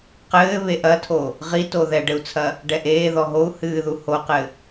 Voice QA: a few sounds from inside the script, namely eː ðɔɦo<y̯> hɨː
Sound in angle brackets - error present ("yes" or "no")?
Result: yes